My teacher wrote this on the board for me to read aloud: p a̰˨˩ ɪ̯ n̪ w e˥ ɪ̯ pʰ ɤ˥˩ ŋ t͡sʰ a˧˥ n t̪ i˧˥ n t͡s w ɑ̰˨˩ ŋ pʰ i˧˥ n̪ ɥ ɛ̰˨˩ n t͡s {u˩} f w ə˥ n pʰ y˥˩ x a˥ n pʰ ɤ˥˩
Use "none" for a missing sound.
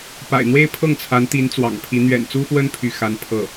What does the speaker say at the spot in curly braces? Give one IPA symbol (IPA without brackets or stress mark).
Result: u˥